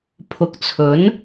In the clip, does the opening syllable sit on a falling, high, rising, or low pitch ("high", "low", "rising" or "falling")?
low